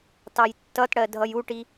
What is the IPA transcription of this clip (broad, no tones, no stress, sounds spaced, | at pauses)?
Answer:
t ɑ j tː ʌ t ɽ ɜ dʱ ʌ j u ʈ i